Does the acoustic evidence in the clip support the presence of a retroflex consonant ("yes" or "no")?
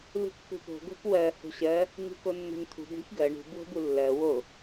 yes